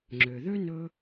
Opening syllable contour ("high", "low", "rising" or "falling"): low